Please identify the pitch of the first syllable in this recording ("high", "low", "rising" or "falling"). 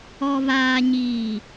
low